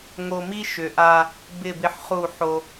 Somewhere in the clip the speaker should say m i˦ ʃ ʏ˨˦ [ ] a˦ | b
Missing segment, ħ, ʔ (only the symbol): ʔ